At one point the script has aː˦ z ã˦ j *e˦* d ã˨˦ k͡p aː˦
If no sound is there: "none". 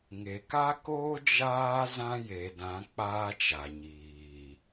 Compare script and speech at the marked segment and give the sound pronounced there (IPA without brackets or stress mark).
e˨